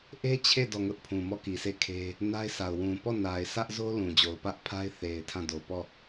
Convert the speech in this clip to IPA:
ʔ e˦ t͡ɕʰ e˦˨ d ɔ˦˨ ŋ ʊ˦ ʔ pʰ ũ˨ m ɔ˦˨ k i˨ s e˦˨ kʰ e˦ | n a˦ ɪ̯ sʰ a˨ ʊ̯ w ũ˨ p ɔ˦˨ n a˨ ɪ̯ sʰ ä˦ ʔ z o˦ l ũ˨ d͡ʑ o˨ ʊ̯ p ä˦ ʔ pʰ a˦ ɪ̯ θ e˨ ɪ̯ tʰ ã˦˨ d o˨ p ɔ˦˨

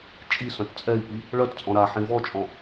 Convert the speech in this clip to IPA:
t͡ʃʼ i s œ̃ t t͡sʼ ɛ i̯ p i | ɭ œ t t͡sʼ ɔ̃ ɾ a ħ ĩ v ɔ t͡ʃʼ ɔ̃

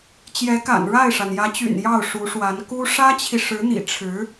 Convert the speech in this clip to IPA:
t͡ɕ j ɛ˧˥ k a̰˨˩ n ɻ a˥˩ ɪ̯ ʂ a˩ n j ä˧˥ t͡ɕ y̰˨˩ n j ɑ˥˩ ʊ̯ ʂ u˧˥ ʂ w a˧˥ n k u˥ ʂ ä˥ t͡ɕʰ i˨ ʂ ɻ̩˧˥ n̪ ḭ˨˩ ʈ͡ʂʰ ɻ̩˧˥

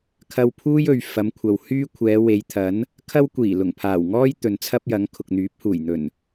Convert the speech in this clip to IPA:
kʰ ɐ˧ w pʰ uː˥ j ɵ˨ ɥ f ɐ˨˧ m kʷʰ ɐ˨ w h yː˥ kʷʰ ɛː˨˧ w e˨˧ j t̪ʰ ɐ˨˥ n | kʰ ɐ˥ w kʷ iː˨˩ l ʊ˨˩ ŋ pʰ aː˨˩ w ŋ ɔː˥ j t̪ ɵ˨ n t͡sʰ ɐ˥ p̚ j ɐ˨˥ ŋ kʰ ʊ˨ k̚ n̪ yː˨˥ p̚ h uː˨˩ j n̪ ɵ˨˩ n

